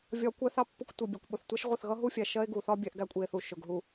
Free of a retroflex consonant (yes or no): yes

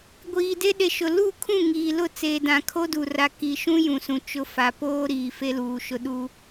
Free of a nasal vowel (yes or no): no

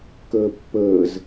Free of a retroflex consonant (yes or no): yes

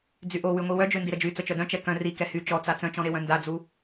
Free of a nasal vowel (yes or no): no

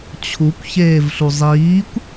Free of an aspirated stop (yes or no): no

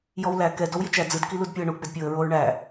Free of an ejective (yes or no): yes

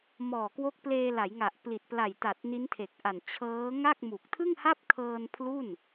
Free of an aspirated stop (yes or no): no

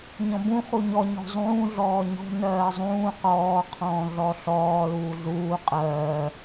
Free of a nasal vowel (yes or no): no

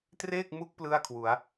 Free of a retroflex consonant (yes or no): yes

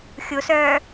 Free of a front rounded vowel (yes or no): no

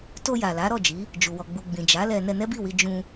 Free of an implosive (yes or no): yes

